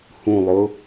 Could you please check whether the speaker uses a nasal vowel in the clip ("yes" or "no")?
yes